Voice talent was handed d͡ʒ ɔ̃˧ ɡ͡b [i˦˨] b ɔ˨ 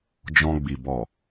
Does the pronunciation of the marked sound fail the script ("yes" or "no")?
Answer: yes